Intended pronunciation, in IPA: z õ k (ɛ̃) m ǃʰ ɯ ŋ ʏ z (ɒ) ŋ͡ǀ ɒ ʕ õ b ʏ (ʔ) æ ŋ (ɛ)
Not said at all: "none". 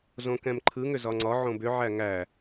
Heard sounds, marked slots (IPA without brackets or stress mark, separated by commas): ɛ̃, ɒ, ʕ, æ